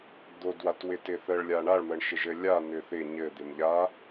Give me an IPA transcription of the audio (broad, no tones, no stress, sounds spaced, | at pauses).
d̪ o d w a t w ɪ t ɪ θ ə ɭ lʲ a ɳ a ɭ m ə ɳ ʃ ɪ ʒ ɘ lʲ a n̪ ʏ θ ɪ ɲ ɘ d̪ ɪ m ʎ a